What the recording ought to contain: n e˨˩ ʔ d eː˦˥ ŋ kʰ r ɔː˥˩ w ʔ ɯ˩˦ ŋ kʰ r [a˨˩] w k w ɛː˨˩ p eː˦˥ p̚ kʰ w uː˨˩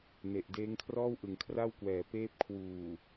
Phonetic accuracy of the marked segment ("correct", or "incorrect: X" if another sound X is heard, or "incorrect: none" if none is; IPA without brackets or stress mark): incorrect: a˥˩